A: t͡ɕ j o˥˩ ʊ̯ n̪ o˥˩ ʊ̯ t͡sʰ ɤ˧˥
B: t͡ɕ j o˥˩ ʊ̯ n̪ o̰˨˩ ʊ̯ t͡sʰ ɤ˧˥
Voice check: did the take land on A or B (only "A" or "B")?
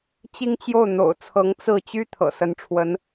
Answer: B